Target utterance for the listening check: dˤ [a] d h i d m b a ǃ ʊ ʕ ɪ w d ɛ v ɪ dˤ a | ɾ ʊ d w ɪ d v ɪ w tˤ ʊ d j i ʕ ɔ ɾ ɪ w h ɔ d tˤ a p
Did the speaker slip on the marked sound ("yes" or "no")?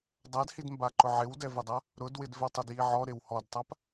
no